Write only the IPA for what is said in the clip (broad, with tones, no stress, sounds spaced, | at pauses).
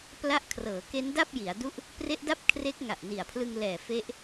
p l a˦˥ ʔ kʰ r ɤː˩˦ k e˦˥ n d a˥˩ p̚ j i˩˦ a̯ d u˥˩ ʔ | p r e˦˥ ʔ d a˥˩ p̚ kʰ r e˦˥ k̚ ŋ a˨˩ ʔ n i˨˩ a̯ pʰ l ɯ˧ ŋ l ɛː˨˩ f e˦˥ ʔ